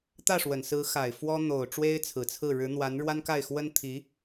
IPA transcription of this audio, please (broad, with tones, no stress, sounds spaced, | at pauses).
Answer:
t̪ ä˥˩ ʂ w ə˨˩ n s ɹ̩˧˥ x a˨˩ ɪ̯ f w ɔ˥ n̪ o˨˩ ʊ̯ ʈ͡ʂ w e˥ ɪ̯ t͡sʰ ɹ̩˨˩ t͡sʰ ɹ̩˥˩ ɻ ɻ̩˧˥ n̪ w a˧˥ n ɻ w a˥ n k a˥˩ ɪ̯ x w ə˥ n t̪ʰ i˧˥